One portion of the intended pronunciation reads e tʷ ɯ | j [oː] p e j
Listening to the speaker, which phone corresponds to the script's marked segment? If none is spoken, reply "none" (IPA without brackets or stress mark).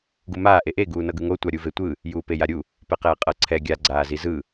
uː